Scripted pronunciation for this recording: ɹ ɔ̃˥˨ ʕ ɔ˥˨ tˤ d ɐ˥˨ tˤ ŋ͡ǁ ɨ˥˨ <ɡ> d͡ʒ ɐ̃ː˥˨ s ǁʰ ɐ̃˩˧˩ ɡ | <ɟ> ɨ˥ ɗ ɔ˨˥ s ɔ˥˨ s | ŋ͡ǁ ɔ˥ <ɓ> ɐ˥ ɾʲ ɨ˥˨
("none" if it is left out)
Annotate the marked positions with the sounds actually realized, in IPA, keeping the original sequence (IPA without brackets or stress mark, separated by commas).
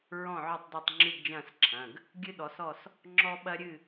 ɡ, ɡʲ, ɓ